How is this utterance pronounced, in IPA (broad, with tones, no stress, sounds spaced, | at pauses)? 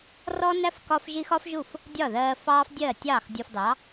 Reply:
r ɔ˥ n æ˥ f k ɒ˥ f ʒ i˥ x ɒ˥ f ʒ u˥˩ f | dʲ ɒ˥˩ ð ɜː˧ f ɑː˥ f dʲ ɜ˥˩ tʲ ɑː˥˩ x dʲ ɒ˧ f d ɑ˩˥